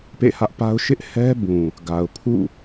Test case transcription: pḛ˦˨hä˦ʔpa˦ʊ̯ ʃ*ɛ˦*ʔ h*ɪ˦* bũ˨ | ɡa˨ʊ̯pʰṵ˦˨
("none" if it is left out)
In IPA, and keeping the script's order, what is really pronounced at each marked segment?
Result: ɪ˦, ɛ˦

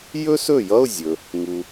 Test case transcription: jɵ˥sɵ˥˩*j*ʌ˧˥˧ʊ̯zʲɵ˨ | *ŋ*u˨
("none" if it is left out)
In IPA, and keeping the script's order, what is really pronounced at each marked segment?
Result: j, ŋ

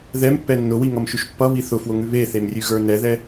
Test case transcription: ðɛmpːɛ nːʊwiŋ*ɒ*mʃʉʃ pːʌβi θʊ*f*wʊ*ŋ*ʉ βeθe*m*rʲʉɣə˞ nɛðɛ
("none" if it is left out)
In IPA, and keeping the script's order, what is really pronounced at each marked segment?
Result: ʌ, f, ŋ, m

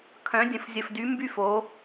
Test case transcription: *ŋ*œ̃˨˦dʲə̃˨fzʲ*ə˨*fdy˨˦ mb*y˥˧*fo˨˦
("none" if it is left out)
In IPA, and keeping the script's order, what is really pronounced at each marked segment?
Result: kʰ, ə˨, y˥˧

